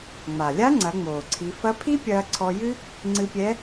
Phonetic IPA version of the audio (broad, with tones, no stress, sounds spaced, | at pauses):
ŋ͡m a˩ lʲ a˧˥ ŋ͡ǀ ɐ˩˧ ŋ͡m oː˩ ǀʰ i˩˧ f ɐ˧˥ pʰ i˥ pʲ ɐː˧ ǀʰ ɔ˧ j ɨ˥ | ŋ͡ǀ ɨ˧ pʲ ɛ˧˥